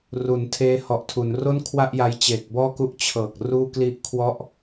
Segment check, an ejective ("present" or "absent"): absent